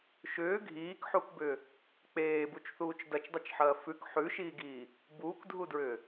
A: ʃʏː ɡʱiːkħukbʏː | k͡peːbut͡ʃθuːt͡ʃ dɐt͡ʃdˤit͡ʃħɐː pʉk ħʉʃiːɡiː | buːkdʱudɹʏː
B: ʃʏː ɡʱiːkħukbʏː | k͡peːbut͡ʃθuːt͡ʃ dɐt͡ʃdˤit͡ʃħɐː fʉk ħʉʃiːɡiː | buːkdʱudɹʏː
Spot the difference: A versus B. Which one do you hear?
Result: B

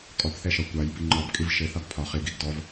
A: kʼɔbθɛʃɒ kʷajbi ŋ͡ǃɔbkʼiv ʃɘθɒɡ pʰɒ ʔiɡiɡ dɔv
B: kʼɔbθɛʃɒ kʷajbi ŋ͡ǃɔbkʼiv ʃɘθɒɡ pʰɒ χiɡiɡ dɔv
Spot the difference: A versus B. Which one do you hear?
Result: B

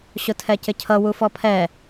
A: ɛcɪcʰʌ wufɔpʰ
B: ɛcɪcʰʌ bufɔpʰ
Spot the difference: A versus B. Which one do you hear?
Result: A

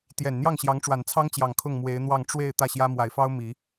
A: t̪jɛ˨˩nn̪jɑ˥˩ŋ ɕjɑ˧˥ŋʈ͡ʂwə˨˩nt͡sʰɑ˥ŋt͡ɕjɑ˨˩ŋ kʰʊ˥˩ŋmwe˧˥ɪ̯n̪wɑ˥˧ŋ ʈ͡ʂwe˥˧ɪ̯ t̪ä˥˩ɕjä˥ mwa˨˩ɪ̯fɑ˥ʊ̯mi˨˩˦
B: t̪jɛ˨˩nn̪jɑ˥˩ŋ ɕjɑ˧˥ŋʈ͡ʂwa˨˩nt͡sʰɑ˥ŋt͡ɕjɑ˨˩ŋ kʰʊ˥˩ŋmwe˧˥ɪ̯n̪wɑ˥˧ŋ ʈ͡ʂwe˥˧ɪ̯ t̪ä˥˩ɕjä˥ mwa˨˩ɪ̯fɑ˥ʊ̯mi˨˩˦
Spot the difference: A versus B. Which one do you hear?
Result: B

